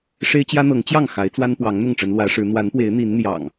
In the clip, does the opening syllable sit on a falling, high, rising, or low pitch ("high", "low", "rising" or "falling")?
high